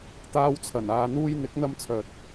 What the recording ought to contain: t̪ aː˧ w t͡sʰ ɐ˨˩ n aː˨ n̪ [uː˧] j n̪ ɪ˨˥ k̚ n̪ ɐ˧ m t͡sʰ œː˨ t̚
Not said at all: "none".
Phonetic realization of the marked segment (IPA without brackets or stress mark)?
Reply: uː˧